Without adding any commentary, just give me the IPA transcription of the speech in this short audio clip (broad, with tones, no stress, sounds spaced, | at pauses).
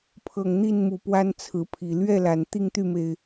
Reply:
pʰ ɤ˨˩ ŋ n̪ i˥˨ n m u˨˩ p w a˦ n t͡sʰ ɹ̩˨˦ pʰ i˨˩ l ɥ ɛ˥˨ l a˨˩ n t̪ i˥˨ ŋ t̪ y˥˨ m e˩ ɪ̯